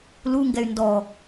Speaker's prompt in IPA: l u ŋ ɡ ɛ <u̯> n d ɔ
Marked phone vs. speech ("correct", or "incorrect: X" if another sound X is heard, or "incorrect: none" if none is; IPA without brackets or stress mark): incorrect: y̯